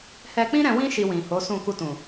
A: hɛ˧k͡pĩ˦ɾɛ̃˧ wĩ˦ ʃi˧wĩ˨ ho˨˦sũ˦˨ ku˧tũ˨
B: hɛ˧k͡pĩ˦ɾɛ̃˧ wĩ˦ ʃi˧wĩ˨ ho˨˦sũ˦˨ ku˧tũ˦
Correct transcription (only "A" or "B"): A